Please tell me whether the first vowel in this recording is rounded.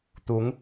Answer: yes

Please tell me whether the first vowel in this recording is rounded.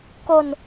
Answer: yes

